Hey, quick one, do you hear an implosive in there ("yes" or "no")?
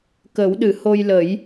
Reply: yes